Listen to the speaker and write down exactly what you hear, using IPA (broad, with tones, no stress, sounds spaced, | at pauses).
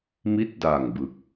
m i˦˥ t̚ d aː˨˩ ŋ b ɯ˦˥ k̚